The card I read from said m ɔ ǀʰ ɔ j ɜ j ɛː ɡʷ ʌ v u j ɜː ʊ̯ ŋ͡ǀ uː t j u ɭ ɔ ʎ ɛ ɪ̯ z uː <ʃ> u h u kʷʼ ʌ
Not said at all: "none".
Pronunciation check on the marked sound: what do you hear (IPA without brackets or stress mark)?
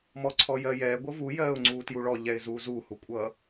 z